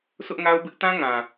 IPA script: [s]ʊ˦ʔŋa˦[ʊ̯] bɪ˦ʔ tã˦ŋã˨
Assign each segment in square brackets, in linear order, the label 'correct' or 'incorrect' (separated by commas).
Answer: correct, correct